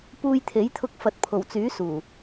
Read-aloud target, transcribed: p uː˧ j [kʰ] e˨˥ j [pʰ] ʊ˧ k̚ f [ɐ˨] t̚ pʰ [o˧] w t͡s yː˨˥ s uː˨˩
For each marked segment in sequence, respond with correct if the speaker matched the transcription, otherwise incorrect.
incorrect: t̪ʰ, incorrect: t̪ʰ, correct, incorrect: o˨˩

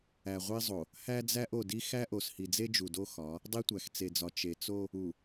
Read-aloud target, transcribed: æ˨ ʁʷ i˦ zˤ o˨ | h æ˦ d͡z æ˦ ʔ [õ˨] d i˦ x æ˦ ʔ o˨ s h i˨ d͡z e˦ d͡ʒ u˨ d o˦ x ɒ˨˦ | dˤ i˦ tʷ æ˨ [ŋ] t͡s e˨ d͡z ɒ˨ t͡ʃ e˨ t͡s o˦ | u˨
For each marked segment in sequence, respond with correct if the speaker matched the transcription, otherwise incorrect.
incorrect: o˨, incorrect: x

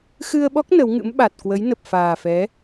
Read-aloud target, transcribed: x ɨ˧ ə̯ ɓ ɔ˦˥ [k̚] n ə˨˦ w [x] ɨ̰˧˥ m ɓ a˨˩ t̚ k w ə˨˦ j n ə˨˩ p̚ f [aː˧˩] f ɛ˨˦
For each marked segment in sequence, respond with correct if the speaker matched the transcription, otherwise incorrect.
correct, incorrect: ŋ, incorrect: aː˨˩

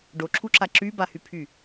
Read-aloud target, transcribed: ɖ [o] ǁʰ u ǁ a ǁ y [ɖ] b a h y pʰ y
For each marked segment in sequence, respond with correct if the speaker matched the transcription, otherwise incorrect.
correct, incorrect: none

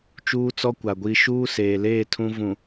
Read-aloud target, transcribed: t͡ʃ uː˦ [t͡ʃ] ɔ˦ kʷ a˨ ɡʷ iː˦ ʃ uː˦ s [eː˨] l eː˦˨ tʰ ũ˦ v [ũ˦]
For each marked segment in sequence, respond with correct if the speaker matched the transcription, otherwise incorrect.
incorrect: t͡s, correct, incorrect: ũ˨

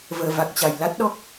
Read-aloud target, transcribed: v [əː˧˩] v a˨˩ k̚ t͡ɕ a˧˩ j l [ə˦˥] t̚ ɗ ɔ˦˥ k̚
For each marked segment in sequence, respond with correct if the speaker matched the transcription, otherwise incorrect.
correct, incorrect: a˦˥

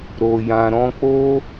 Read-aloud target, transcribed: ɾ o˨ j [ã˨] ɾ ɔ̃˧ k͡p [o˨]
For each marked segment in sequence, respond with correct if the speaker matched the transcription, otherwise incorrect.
correct, incorrect: o˦

